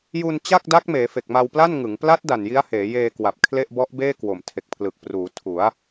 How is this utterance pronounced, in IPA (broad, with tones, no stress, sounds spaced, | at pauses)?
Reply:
j u˧ n t͡ɕ a˥˩ k̚ d a˦˥ k̚ m eː˩˦ f e˨˩ k̚ m a˧ w p l a˥˩ n ŋ ɯ˩˦ ŋ p l a˦˥ t̚ d a˨˩ n j i˦˥ a̯ h eː˩˦ j eː˧ k w a˨˩ p̚ kʰ l e˥˩ ʔ b ɔ˦˥ ʔ b eː˥˩ k w o˨˩ m tʰ e˨˩ k̚ pʰ l ɯ˨˩ k̚ p r uː˩˦ tʰ u˩˦ a̯